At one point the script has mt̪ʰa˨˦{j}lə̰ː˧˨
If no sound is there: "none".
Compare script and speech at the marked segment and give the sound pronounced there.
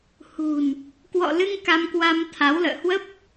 w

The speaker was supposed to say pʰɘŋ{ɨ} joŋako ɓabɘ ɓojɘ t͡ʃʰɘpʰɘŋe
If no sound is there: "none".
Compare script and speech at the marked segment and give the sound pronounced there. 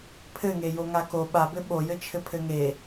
e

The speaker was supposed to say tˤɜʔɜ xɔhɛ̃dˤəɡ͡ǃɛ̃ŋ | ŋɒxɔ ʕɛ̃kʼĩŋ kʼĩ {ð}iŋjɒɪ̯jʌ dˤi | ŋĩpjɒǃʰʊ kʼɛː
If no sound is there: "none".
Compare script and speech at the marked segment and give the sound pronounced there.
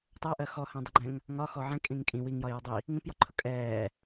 w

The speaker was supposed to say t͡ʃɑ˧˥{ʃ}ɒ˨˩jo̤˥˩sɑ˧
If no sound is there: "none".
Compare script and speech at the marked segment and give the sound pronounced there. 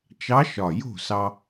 ʃ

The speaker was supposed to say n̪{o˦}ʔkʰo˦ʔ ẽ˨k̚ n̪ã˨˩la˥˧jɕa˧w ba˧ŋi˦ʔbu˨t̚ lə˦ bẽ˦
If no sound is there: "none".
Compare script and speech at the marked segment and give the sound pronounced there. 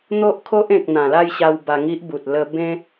o˦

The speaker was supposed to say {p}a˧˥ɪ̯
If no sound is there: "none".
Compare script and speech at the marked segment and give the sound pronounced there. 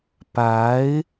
p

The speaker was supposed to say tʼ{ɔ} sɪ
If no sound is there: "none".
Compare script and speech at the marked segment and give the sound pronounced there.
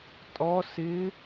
ɔ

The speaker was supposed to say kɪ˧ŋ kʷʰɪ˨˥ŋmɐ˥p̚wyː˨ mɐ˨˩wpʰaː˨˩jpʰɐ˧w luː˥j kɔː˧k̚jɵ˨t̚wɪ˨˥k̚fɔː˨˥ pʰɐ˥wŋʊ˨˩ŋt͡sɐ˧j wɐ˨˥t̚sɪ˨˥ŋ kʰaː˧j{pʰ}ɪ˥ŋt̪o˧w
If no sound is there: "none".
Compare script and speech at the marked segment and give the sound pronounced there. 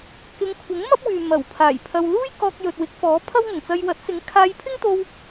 pʰ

